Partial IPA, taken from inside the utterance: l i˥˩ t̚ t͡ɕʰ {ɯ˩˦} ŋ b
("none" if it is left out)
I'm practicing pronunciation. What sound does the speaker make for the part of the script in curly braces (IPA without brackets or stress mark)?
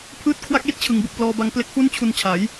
ɯ˩˦